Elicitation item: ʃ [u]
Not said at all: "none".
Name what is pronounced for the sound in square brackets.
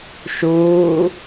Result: uː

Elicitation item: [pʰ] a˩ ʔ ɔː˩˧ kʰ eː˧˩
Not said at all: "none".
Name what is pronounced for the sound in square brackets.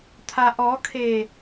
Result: t̪ʰ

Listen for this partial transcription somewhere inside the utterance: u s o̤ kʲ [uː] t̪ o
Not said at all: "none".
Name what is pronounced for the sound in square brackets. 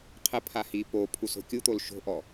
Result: u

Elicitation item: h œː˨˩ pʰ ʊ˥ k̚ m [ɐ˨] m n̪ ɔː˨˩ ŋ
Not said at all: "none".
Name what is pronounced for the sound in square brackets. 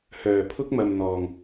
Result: ɐ˨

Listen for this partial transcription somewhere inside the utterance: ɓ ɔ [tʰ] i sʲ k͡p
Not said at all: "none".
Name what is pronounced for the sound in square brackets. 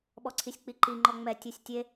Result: ǀʰ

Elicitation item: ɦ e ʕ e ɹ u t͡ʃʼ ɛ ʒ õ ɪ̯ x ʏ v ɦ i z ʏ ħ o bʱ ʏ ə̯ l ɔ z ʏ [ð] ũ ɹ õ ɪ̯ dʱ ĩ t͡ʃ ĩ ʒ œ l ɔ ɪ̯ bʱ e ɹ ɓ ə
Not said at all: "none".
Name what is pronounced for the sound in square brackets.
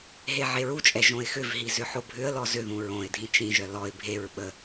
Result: ð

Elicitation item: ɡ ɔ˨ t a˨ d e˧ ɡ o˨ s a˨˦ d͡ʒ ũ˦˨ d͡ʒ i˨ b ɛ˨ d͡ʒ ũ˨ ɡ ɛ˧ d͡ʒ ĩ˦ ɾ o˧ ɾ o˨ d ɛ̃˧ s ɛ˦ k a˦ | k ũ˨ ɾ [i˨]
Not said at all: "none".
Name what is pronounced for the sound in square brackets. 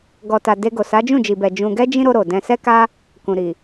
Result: i˨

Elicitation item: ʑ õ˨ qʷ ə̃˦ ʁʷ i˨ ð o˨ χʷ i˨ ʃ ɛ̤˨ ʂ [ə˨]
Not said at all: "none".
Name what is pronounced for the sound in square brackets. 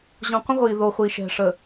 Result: ə˨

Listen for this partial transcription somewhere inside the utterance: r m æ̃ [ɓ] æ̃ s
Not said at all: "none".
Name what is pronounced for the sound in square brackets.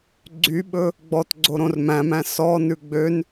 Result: m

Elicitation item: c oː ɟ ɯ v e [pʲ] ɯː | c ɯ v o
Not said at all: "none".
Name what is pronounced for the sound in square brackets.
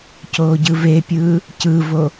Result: pʲ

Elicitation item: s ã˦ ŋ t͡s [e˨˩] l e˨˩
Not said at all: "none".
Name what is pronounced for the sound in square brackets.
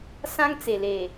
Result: e˨˩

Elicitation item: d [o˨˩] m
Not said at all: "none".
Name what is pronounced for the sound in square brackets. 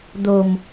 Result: o˧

